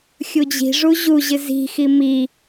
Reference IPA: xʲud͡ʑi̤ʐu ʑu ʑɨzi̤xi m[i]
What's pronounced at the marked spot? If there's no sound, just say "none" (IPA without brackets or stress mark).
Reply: i